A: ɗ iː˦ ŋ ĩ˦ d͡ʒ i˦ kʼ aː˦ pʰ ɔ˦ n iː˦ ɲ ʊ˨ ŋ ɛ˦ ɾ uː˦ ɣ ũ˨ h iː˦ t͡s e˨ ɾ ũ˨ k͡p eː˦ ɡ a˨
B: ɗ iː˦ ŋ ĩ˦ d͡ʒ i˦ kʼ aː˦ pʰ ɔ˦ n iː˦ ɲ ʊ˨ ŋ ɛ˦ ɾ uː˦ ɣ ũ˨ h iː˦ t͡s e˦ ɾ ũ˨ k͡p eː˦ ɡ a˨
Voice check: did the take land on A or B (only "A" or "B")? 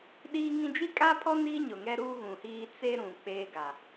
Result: B